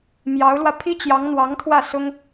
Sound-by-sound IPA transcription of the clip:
m j ɑ˧˥ ʊ̯ l w ä˧ pʰ i˥ t͡ɕ j ɑ˧˥ ŋ n̪ w ɑ˧˥ ŋ t̪ʰ w ä˥˩ s ʊ˥ ŋ

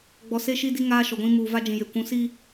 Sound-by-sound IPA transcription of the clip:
ɡ͡b ɔ˨ s e˦ ʃ i˦ d i˦ ŋ aː˦ ʃ ɔ˨ ɡʷ ĩ˦ m uː˨ v a˦ d͡ʒ ĩ˨ j e˨ kʷ ũ˨˦ s i˦

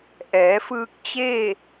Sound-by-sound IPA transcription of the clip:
ʔ ɛː˩˧ f ɯː˧ k̚ t͡ɕ eː˥˨

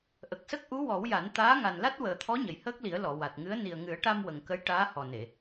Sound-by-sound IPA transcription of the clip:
ʔ ə˨˩ k̚ s ə˦˥ k̚ ʔ u˧˥ w ɔ˨˩˦ w j a˨˩˦ n t̪ aː˧˥ ŋ a˨˩ n l a˦˥ t̚ w əː˨˩ t̪ʰ ɔ˧˥ ɲ ə˨˩ j h əː˦˥ k̚ l i˨˩˦ ə̯ l ɔ˨˩˨ w a˨˩ t̚ ŋ ɨ˧˥ ə̯ n i˨˩ ə̯ ŋ ɨ˨˩˦ ə̯ ʈ a˧ m w ə˨˩ ŋ k ə˧˥ j ʈ aː˧˥ h ɔ˨˩ n e˨˩˨

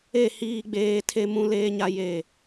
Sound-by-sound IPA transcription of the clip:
e˦˨ h iː˦ ɡ͡b eː˦ tʰ e˦ m ũ˦ l eː˦ ɲ a˦ j e˦˨

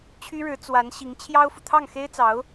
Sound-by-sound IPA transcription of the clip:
t͡ɕʰ y˥ ɻ ɻ̩˧˥ t͡s w a˧˥ n ɕ i˧˥ ŋ t͡ɕʰ j ɑ˥ ʊ̯ f u˨ t̪ʰ ɑ˥˩ ŋ x e˥ ɪ̯ t͡s ɑ˧˥ ʊ̯

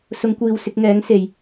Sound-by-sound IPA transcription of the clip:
s ʊ˨˧ ŋ kʷ iː˨ w s ɪ˧ k̚ ŋ ɛː˨˥ ŋ s e˨ j

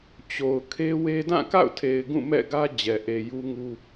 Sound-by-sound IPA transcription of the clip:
t͡ɕ o˨ ʊ̯ kʰ e˦ w e˦ d ã˦˨ k a̰˦˨ ʊ̯ tʰ e˨ ɪ̯ ɡ ũ˦˨ m ɛ̰˦˨ ɡ ä˦ d͡ʑ ɛ˨ ʔ e˨ j u˦ ŋ u˦

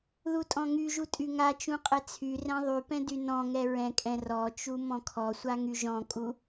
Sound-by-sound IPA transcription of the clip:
ð u tʼ ɔ̃ ŋ y ʒ u tʼ y ŋ a t͡ʃ ũ qʼ ɛ t͡sʰ y r ɛ̃ ðˤ y p ɛ̃ d y n ɔ̃ ŋ ɛ ɹ ɛ̃ kʼ ɛ̃ r ɔ t͡ʃ u m ɔ̃ kʰ ɔ sʷ a ŋ y ʒ ɔ̃ kʼ u

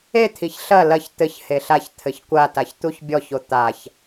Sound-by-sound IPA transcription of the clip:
e t̪ʰ i ç ɬ ɐ l ɐ ç t̪ ɘ ç h e ɬ a ç t̪ʰ ɘ ç kʷ a t a ç t̪ u ç bʲ ɔ ç o t̪ a ç

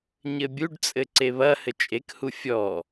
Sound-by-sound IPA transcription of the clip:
ɲ ɘ bʲ u ɖ t͡sʼ ɘ ǀ e β ɐ h ɘ t͡ʃʼ e k h u fʲ ɔ

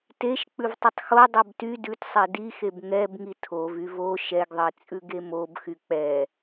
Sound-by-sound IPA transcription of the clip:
t e ʃ k͡p ʉ v tˤ e tˤ x o dˤ o b t y d ʉ t sˤ ɛ d i x e b ŋ ɛ b ŋ i tʰ o v y v o ʃ ɛ ɡ ðˤ e t͡sʼ ʉ ɡ e m o b x y k͡p ɛ

